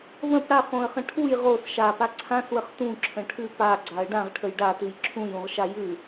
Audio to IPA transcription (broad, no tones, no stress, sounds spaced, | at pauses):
v ə̃ p ɽ a χ õ ə̯ χ ə̃ ʈʰ u j ʁ o s ʃ a p a ǀʰ ã s w ə χ t ũ ǁʰ ə̃ ʈʰ ʉ p a ɡ͡ǀ a ə̯ ɖ ã ʁ ʈʰ ə j ɖ a t ʉ j ǁʰ ũ j ũ ʁ ʃ a j ʉ